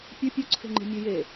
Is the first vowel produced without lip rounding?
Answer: yes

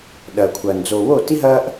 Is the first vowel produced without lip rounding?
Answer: yes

